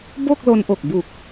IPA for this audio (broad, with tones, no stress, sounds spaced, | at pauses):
b o˥˩ k̚ l o˧ n ʔ o˨˩ k̚ b u˨˩ k̚